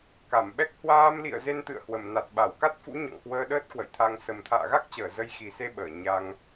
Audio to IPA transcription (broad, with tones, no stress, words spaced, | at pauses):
ka˧˩mɓɛ˦˥k̚ hwaː˧mlḭ˧˨ə̯ze˧n t̪ɨ̰˧˨ə̯hwə˧˩m na˨˩t̚ɓa˧˩wka˦˥t̚fṵ˧˥ ɲɔ̰˧˨ŋkwəː˧ ɗəː˦˥t̚kwə̰˧˨jt̪ʰa˧ŋ sə˨˩mt̪ʰa̰ː˧˨ɣa˦˥k̚t͡ɕəː˧˩ zə˧jxi˨˩se˧ɓəː˧˩ ɲa˧ŋ